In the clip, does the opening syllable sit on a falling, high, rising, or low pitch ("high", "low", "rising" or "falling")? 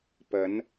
rising